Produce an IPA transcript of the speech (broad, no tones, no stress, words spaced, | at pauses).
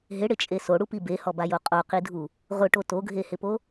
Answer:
ɦɪɽɪt͡ʃʼe soɽupi behɔbajo qʼoqidʱu | ʁʊʈo toɡʱehɪpo